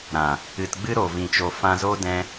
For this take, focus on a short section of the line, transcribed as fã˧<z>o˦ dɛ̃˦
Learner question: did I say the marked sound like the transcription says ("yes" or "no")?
yes